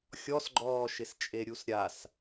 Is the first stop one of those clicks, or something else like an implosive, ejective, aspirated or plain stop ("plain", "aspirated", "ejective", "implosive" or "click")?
click